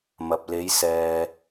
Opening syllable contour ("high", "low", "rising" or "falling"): low